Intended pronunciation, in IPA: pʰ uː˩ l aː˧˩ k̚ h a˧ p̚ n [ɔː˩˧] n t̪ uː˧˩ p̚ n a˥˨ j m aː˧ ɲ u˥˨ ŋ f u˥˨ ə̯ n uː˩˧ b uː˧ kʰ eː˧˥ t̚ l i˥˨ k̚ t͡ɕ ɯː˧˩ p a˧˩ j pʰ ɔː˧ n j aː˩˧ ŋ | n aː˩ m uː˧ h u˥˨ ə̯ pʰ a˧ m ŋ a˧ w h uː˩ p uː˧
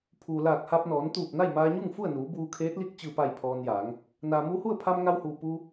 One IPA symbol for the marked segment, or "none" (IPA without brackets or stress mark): ɔː˩˧